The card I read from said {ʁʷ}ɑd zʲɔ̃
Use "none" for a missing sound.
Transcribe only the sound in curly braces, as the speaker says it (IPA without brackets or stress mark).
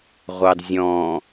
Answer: ʁʷ